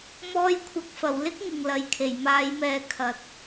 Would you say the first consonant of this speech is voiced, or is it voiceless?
voiced